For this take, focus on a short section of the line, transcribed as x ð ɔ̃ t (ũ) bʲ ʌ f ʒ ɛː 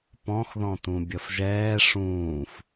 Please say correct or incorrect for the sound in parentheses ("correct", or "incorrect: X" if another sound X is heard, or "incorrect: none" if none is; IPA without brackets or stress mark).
correct